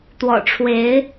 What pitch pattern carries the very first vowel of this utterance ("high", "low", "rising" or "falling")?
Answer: low